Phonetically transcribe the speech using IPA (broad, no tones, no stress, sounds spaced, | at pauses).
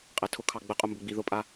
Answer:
qʼ æ tʰ ʊ kʰ ɑ ɡ͡b ə qʼ ʊ m b ʊ ɡ͡b i ð ʊ pʼ a